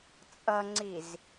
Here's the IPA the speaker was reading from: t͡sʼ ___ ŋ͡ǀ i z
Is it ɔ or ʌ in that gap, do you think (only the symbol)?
ʌ